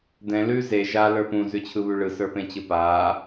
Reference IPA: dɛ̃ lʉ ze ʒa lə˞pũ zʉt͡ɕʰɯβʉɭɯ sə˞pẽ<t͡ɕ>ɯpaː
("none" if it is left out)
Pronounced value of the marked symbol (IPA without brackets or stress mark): t͡ɕ